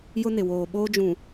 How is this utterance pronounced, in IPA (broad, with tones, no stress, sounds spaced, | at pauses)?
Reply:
j ʊ˦ n ɪ˨ w oː˨ ɓ oː˦ d͡ʒ ũ˨